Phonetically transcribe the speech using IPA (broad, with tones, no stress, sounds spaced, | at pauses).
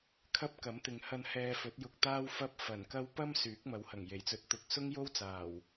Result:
kʰ ɐ˥ p̚ k ɐ˨˥ m t̪ ɪ˨ ŋ h ɐ˧ n h ɛː˧ f ɵ˨˥ t̚ j ʊ˧ k̚ t̪ aː˥ w f ɐ˥ p̚ f ɐ˨˩ n k ɐ˥ w p ɐ˥ m s yː˨˥ k̚ m ɐ˨˥ w h ɐ˨˩ ŋ j e˨˩ j t͡s ɵ˨˥ t̚ t̪ ʊ˨ k̚ s ʊ˥ ŋ j o˥ w t͡s aː˨˩ w